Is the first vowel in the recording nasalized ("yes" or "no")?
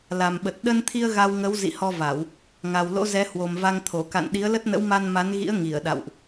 no